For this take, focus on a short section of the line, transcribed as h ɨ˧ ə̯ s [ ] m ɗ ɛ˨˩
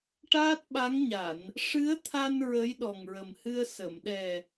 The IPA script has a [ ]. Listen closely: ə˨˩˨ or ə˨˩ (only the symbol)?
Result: ə˨˩˨